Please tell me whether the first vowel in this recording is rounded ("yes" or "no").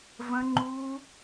no